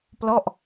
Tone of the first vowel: falling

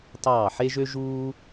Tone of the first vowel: falling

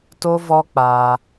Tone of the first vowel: high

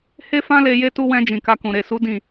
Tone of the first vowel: high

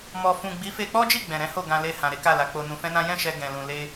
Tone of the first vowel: low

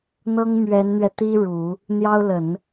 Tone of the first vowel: high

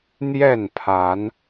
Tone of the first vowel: falling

